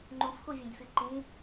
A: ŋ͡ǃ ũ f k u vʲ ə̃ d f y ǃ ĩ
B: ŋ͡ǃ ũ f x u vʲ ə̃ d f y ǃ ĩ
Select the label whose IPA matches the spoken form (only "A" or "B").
B